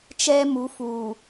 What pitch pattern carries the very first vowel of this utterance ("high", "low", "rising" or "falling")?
high